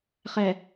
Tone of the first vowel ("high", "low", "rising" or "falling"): low